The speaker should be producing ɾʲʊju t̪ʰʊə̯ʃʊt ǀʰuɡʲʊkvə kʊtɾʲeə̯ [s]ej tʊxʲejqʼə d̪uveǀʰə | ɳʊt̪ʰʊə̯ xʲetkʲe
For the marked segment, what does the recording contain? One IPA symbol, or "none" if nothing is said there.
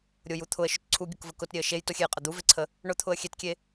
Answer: ʃ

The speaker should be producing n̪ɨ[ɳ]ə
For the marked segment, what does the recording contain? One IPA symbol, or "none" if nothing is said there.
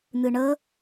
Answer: ɳ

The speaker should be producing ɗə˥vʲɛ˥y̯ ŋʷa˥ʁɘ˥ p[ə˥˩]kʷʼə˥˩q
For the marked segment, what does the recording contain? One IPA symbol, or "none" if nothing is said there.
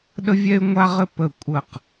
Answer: ə˥˩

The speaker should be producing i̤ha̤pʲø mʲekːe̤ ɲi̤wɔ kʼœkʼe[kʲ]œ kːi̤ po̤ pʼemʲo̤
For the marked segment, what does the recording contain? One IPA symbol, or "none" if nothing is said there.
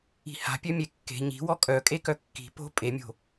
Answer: k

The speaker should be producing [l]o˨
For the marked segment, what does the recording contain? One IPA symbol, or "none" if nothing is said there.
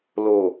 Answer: l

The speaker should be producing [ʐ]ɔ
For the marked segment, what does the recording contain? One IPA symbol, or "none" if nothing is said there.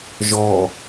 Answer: ʒ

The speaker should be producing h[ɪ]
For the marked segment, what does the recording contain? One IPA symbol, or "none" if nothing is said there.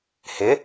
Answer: ɪ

